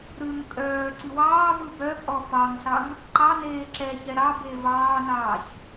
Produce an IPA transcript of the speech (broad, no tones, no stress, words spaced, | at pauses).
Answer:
ɾɯŋ kʼœː ǀiwɑːvɯ bœpʼɔ fɑŋɬɑŋ | ǃɑneː ǁɛçɛ ɾɑ bevɑːnɑːç